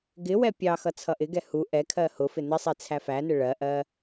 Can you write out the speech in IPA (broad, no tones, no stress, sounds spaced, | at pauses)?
ɡ ɪ w ɛ pʲ ɑ x ʌ t͡sʰ ʌ ʔ ɪ ɡ ɛ h u ʔ ɛ kʰ ɜ h ʊ f ɪ n ɪ sˤ i t͡sʰ æ f æ n ɪ ɭ ɜ ʔ ɜ